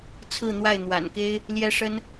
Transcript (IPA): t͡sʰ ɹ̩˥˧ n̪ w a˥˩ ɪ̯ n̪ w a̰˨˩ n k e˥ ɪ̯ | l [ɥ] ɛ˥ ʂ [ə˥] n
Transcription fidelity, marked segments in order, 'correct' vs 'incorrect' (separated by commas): incorrect, correct